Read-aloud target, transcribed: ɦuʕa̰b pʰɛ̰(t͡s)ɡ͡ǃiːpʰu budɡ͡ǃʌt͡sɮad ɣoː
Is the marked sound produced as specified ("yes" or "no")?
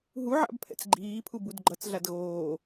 yes